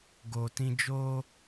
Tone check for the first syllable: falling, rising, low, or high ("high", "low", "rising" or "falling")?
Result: low